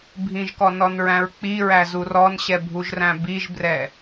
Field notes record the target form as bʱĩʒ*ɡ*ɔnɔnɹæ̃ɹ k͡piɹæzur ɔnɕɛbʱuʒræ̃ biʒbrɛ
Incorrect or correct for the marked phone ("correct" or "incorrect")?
incorrect